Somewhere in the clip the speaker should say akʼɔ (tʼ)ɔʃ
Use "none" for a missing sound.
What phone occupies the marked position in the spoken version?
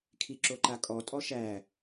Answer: tʼ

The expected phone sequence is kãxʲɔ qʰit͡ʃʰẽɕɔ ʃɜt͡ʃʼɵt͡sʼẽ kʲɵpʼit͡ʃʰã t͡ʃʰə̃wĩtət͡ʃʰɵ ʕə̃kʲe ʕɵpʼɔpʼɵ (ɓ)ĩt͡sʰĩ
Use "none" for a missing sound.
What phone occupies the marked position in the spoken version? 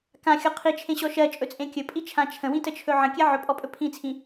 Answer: pʰ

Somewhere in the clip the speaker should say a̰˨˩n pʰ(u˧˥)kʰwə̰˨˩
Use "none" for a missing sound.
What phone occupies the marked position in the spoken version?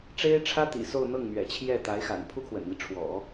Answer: u˥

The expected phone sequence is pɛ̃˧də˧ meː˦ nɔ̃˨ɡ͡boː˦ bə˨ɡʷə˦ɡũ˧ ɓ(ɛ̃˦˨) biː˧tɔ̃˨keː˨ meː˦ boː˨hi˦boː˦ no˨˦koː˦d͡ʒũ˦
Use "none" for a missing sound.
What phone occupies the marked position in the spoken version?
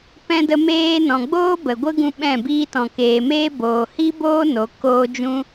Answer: ɛ̃˦˨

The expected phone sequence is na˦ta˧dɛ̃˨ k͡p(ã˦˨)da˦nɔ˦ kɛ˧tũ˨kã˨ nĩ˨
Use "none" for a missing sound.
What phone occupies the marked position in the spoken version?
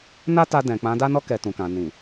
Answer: ã˨˦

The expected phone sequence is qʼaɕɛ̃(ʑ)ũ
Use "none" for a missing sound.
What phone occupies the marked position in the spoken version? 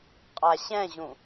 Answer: ʑ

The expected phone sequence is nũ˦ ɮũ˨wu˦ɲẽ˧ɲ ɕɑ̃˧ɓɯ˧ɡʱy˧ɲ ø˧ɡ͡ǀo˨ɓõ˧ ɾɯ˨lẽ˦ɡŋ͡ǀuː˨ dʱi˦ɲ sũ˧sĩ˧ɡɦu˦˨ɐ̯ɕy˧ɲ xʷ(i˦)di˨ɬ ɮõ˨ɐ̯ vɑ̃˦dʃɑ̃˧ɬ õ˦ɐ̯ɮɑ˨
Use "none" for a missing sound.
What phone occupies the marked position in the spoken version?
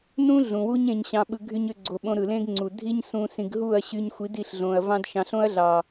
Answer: i˨˦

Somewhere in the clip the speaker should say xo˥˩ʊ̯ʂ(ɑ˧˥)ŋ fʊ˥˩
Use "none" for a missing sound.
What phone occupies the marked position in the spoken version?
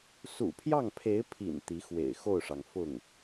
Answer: ɑ˩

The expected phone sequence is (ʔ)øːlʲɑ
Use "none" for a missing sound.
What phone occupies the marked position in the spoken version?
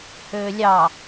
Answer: h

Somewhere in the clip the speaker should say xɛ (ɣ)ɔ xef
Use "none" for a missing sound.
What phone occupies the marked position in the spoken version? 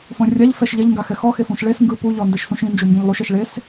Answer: x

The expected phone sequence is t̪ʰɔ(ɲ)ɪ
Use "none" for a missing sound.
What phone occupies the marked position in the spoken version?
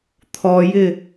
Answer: j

